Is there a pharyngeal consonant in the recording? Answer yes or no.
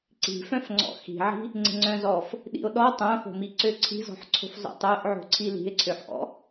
yes